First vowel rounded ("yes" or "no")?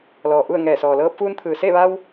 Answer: yes